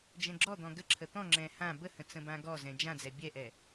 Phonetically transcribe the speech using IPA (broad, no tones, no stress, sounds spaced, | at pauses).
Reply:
d͡ʒ ɛ̃ ɡ͡ǁ ɔ d̪ ɔ̃ ɡ ə ǁʰ ə t̪ ɔ̃ ŋ͡ǁ ɛ̃ h ã b ə h ə̃ t͡s ə̃ b ã ɡ ɔ z ɛ̃ d͡ʒ ã d͡z ɛ bʲ ɛ ʔ ɛ